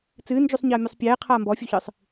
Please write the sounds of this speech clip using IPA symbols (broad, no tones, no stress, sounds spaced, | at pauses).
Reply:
t͡s ɨː n d͡ʒ u sˤ ɲ ɐː mʲ ɨ sˤ pʲ ɛː qʰ aː m b ɔ fʲ u ç ɨ sˤ